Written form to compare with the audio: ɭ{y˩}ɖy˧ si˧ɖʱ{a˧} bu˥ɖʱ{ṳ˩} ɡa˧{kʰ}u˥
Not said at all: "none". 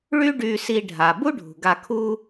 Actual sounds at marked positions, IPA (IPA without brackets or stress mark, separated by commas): y˥, a˩, ṳ˩, kʰ